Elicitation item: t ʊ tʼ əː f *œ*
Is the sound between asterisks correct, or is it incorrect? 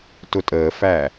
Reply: incorrect